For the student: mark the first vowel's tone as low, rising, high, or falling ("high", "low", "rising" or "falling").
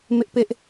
high